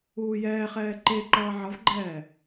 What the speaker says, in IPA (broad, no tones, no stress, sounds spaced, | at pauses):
uː j ɛː χ ɛː ǃ e ǃ ʌː ʕ ʌ v ɡ͡ǃ ɛː